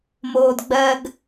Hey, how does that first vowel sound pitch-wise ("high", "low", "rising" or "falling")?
low